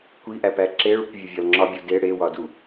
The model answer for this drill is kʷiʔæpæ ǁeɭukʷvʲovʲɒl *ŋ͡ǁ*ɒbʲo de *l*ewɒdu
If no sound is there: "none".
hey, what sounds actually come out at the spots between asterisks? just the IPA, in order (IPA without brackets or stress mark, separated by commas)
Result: ŋ͡ǁ, ɽ